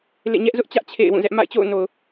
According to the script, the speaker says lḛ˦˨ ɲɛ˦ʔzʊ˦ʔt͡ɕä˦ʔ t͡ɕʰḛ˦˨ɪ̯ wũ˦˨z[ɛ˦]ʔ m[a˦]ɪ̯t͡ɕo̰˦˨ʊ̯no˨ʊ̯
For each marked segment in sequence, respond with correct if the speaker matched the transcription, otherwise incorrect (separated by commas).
correct, incorrect